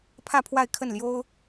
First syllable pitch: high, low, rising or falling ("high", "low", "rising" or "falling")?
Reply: falling